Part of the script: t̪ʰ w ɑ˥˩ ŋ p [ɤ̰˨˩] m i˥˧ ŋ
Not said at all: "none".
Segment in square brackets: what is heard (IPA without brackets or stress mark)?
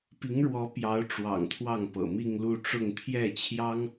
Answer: ɤ̰˨˩